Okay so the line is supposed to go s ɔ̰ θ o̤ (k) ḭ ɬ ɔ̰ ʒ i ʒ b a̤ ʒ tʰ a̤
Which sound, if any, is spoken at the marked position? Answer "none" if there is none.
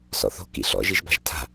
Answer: k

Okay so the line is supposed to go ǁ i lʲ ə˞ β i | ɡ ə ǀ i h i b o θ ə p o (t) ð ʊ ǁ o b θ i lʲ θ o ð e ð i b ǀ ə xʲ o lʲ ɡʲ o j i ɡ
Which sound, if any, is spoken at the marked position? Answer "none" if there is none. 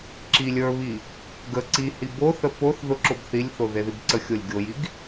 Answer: θ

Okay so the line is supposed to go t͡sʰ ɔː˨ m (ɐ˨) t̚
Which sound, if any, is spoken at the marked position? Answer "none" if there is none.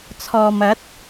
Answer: ɐ˨˥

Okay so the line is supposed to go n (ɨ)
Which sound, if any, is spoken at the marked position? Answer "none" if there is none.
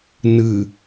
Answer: ɨ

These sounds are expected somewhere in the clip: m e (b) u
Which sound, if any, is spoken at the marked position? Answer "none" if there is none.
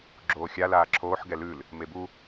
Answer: b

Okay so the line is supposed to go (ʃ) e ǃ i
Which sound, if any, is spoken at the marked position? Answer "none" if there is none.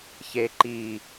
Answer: ç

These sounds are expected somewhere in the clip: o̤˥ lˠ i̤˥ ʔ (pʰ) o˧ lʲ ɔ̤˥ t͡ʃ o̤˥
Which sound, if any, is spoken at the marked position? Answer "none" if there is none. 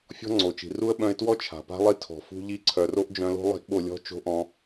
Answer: ɓ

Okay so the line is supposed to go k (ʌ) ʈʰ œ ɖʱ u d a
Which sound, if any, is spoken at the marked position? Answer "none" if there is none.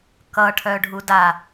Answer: ʌ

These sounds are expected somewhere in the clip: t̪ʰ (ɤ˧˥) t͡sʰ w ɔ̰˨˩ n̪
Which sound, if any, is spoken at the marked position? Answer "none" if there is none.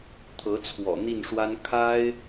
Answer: ɤ˧˥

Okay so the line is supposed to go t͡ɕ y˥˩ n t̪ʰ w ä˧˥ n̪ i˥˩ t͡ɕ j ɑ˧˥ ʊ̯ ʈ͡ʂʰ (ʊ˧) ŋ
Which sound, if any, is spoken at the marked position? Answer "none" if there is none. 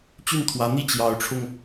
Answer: ʊ˧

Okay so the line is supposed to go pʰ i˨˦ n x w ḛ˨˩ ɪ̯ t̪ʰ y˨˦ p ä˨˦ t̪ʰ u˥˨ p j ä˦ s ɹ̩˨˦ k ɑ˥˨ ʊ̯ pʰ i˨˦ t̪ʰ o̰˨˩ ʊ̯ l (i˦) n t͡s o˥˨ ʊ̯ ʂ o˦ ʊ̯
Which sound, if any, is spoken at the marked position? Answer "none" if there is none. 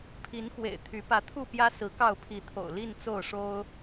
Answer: i˥˨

